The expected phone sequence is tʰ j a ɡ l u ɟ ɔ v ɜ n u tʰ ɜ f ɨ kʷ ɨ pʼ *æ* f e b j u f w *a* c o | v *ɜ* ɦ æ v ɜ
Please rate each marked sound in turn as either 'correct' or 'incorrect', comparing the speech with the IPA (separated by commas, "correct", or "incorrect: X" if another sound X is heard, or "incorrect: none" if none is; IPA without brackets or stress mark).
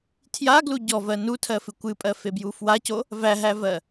incorrect: ɜ, correct, incorrect: æ